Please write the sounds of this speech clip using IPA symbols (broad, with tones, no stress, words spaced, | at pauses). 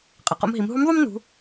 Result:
qʼɐ˩qo̰˧mɦi˩˧m ɦu˧˥m ðˤu˥mnṳ˩˧